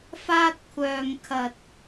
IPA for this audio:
f aː˥ t̚ kʷʰ œː˧ ŋ kʰ ɐ˧ t̚

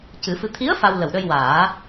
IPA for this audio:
c ɨ˨˩˦ f ɨ˧ t̪ʰ i˧˥ ə̯ f a˧ w l ə˨˩ w ɗ ə˧ j w aː˨˩˦

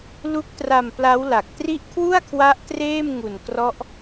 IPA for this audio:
l u˦˥ k̚ t r a˧ m p l a˦˥ w l a˨˩ k̚ t r i˥˩ ʔ kʰ w u˥˩ a̯ kʰ w a˦˥ ʔ t r eː˥˩ m ŋ u˨˩ n k r ɔ˦˥ ʔ

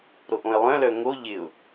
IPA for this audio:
ɾ o ʔ õ ɪ̯ lˠ œ̃ l œ ŋ o ʎ ɪ ʊ̯

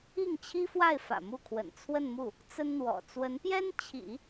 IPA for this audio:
i˥˩ ŋ t͡ɕʰ i˥ f w a˥˩ ɪ̯ f ä̰˨˩ m u˥˩ kʰ w ə̰˨˩ n t͡sʰ w ə˥˧ n m u˥˩ | t͡s ə˥ n n̪ w ɔ̰˨˩ t͡s w ə˧˥ n p j ɛ˥ n t͡ɕʰ ḭ˨˩˦

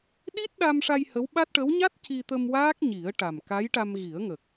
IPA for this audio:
ɗ i˦˥ t̚ ɗ a˧ m ʂ a˧ j h ə˧˥ w ɓ a˦˥ t̚ ʈ ə˧˥ w ɲ a˦˥ t̚ c i˧ t̪ ə˧ m w aː˦˥ k̚ ɲ i˨˩˦ ə̯ ʈ a˨˩ m k a˧˥ j ʈ a˧ m ɣ i˨˩˦ ə̯ ŋ ə˨˩ k̚

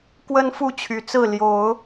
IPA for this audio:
k w ə˦ n f u˥˨ t͡ɕʰ y˨˩ t͡s ɹ̩˥˨ l j o˨˦ ʊ̯

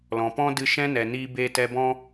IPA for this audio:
l ɔ̃˨ p ɔ̃˦ d ɨ˧ ʃ ɛ̃˦ n ɛ˨ n iː˧ b eː˧ t ɛ˧ b ɔ̃˦

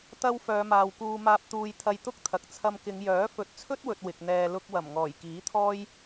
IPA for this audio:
t̪ ɐ˧ w f œː˨˧ m aː˨ w k uː˧ m aː˧ p̚ t̪ uː˧ j t̪ʰ ɐ˧ j t̪ ʊ˥ k̚ t̪ʰ ɐ˨ k̚ t͡sʰ ɐ˧ m k ɪ˨˧ ŋ j œː˨˥ f ɵ˨˥ t̚ t͡sʰ ɵ˥ t̚ w ɵ˨ t̚ w ɪ˨ k̚ n̪ ɛː˧ l ʊ˧ k̚ w ɐ˨˩ m ŋ ɔː˨˩ j k iː˨˥ t̪ʰ ɔː˥ j

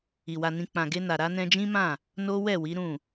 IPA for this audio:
i˨ w a˧ n ĩ˧ k͡p ã˨ ɡ e˧ n a˨ ɾ a˧ n ɛ̃˧ d͡ʒ ĩ˦ m ã˦˨ | n o˦ w ɛ˦˨ w i˨˦ ɾ ũ˦˨

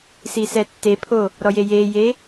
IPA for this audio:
s i s ɛ tː e pʰ oː | ɾ ɔ j e j eː j eː

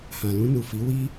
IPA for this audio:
h ã˨ l ũ˧ n u˨ f i˨˦ w i˦

